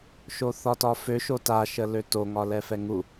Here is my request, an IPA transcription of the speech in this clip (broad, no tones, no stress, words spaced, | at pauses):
ʃoθɒtɒfø ʃota ʃəløto ŋɒlɛfɛŋu